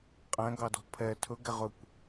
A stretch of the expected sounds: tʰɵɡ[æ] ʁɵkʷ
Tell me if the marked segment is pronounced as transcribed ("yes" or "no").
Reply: yes